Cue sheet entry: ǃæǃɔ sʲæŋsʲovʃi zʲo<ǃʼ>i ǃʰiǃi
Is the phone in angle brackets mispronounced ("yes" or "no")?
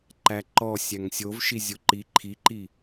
yes